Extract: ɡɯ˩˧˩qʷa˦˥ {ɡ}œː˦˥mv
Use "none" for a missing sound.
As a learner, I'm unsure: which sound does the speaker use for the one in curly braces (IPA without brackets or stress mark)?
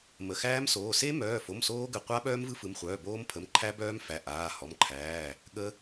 ɓ